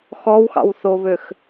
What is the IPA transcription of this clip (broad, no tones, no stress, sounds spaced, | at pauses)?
x ɔ w x ɑ̰ w θ o β ø x